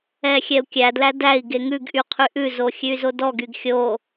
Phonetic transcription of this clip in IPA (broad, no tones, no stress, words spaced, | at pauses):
ɛxʲɛu̯kʲædlæ dæi̯ ɡeŋʉɡʔy qʰyʔʉzo xʲʉy̯zodɔɡyɡ xʲo